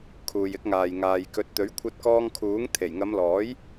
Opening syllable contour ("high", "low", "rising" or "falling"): low